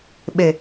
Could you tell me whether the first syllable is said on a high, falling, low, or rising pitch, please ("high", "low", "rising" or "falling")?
low